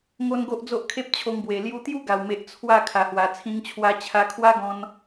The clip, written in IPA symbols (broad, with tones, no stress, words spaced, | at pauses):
ŋo˦nɡo˦ʔ d͡zo˦ʔkʰe˦p̚t͡ɕʰo˧ŋbwe˨˩ lju˧t̪ju˦ɡa˨˩wme˨ʔ t͡sʰwa˥˧ kʰa˨˩hwa˨˩ t͡sʰĩ˧ŋt͡ɕʰwa˧ t͡ɕʰa˧kʰwa˦ɡɔ̃˧n